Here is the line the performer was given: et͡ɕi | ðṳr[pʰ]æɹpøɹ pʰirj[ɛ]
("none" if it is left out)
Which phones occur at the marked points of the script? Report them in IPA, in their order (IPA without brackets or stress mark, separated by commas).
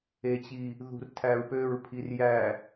tʰ, æ